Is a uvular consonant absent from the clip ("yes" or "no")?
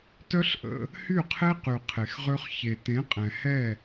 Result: no